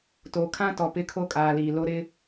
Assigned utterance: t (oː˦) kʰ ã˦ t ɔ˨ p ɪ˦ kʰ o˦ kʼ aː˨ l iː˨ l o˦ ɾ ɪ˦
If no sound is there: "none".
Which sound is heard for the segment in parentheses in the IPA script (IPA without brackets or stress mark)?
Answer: oː˨